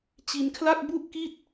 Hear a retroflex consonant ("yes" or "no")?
no